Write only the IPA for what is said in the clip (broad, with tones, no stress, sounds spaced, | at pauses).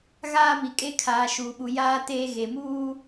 ɣ aː˦ m i˨ kʼ e˦ kʰ aː˨ ʃ uː˨ ɓ u˨ j aː˦ t eː˦ ɣ e˨ m uː˦